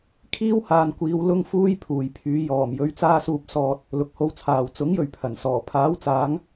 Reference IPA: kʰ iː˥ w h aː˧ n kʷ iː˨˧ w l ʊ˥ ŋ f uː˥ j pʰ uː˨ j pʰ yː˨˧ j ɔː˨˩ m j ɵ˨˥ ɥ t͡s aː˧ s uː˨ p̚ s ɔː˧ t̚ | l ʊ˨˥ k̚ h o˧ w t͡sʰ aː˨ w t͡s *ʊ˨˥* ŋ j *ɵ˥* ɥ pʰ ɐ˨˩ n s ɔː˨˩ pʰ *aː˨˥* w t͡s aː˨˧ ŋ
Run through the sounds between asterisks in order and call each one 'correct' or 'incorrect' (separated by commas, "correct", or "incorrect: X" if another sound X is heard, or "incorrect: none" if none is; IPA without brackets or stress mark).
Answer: correct, incorrect: ɵ˨, correct